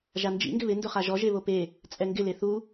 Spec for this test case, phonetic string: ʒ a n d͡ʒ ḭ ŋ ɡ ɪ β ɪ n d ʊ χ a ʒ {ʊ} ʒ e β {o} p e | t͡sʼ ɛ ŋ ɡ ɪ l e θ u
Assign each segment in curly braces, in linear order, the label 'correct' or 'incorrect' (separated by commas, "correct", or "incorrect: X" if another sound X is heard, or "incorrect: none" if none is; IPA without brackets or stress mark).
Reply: incorrect: ɔ, correct